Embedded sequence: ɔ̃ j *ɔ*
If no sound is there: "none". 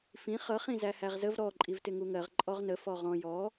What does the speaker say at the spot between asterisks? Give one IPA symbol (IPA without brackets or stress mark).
ɔ